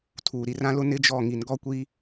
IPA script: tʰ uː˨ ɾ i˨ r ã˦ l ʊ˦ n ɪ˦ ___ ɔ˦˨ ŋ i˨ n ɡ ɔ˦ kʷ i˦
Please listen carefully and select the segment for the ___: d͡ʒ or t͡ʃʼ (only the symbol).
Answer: d͡ʒ